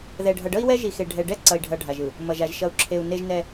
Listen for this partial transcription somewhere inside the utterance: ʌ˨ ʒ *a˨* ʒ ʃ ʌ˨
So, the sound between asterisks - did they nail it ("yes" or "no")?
yes